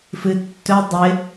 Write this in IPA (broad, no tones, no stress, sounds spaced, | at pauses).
f ɨ tː ɵ dˤ ɪ